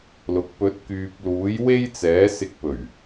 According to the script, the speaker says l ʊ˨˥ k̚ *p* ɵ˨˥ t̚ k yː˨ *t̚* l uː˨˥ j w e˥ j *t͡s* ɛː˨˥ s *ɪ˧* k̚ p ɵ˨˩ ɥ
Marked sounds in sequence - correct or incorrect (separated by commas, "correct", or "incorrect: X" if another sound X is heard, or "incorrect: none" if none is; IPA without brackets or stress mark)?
correct, incorrect: p̚, correct, correct